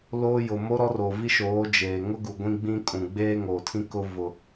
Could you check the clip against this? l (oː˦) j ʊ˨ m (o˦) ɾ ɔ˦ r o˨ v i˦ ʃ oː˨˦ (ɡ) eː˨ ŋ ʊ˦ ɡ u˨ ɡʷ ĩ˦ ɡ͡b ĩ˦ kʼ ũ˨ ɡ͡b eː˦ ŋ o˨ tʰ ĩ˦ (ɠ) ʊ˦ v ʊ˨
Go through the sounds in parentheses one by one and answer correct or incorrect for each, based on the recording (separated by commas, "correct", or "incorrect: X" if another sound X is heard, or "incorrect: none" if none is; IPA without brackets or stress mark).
correct, correct, incorrect: d͡ʒ, incorrect: k